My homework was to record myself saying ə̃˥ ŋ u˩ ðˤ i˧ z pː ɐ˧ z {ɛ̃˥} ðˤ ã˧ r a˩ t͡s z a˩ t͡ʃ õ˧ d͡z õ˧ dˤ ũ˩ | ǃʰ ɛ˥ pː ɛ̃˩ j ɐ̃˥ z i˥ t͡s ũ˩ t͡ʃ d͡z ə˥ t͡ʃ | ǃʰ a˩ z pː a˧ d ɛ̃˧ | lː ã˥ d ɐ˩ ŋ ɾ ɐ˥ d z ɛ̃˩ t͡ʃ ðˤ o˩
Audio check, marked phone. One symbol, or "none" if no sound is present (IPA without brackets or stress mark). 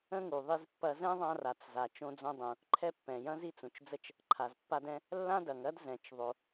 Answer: ɛ̃˥